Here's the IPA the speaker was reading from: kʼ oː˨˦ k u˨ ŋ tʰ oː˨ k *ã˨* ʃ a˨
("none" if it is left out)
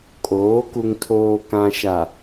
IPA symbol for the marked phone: ã˨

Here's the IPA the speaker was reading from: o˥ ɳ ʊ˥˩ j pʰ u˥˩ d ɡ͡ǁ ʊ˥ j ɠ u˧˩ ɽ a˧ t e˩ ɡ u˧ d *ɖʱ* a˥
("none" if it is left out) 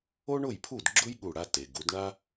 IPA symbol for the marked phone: ɳ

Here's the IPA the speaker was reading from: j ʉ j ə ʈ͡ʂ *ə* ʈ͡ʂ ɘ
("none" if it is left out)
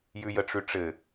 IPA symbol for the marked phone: ʉ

